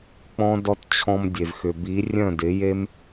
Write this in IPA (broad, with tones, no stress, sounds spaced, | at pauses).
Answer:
k͡p ɔ̃˦ d ɔ˦ t t͡ɕʰ ɔ̃˧ m dʲ e˨ v x ʏ˨ b i˨˦ rʲ œ̃˦˨ d ɪ˨˦ j e˦ m